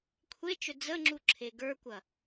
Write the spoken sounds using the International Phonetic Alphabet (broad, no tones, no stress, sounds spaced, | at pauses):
kʷʰ e t͡ʃ ɵ d͡z ə ŋ͡ǁ u ǁʰ e ɡ ə˞ kʷ ɐ